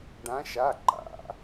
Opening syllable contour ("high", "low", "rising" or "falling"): rising